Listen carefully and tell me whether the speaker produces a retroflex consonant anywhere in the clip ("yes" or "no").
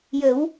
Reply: no